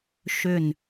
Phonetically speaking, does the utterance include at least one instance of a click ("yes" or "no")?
no